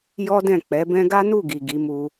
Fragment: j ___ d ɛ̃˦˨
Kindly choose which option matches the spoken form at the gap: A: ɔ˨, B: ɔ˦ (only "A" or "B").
B